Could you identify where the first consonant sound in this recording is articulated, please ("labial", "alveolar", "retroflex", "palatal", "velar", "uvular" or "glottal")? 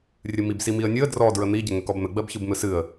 alveolar